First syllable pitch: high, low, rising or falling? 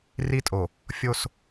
high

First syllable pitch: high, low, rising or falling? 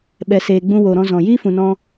low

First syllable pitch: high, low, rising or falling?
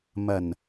low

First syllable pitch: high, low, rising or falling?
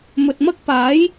low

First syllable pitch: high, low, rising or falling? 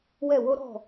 falling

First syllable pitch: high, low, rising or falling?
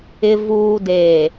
low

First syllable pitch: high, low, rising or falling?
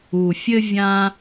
low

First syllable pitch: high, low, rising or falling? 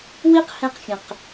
high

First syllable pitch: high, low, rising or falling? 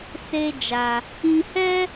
high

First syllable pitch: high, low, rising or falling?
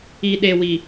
low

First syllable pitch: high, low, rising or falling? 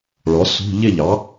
rising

